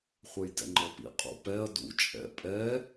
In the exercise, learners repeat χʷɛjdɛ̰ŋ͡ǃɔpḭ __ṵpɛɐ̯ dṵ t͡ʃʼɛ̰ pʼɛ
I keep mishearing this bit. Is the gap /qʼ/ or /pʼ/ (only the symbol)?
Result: qʼ